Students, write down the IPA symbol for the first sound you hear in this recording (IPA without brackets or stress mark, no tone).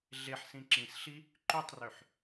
ɮ